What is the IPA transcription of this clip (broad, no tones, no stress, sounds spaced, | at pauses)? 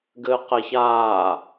ɡ ɘː q ɛ ç aː